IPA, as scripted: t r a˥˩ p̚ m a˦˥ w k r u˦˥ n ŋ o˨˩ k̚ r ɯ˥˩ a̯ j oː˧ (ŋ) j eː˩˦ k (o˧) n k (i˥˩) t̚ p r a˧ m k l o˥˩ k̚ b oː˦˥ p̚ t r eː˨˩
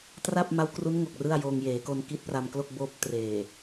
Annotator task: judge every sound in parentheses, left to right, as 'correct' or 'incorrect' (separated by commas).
correct, correct, incorrect